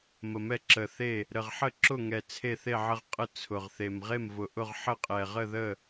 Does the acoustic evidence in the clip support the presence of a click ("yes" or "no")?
yes